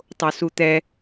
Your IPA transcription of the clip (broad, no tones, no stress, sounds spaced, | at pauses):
tˤ o s u t̪ ɛ